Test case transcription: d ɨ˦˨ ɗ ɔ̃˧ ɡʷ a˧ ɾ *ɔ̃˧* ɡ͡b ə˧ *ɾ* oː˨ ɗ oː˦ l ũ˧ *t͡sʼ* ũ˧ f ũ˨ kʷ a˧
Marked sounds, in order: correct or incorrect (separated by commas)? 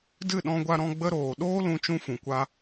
correct, correct, incorrect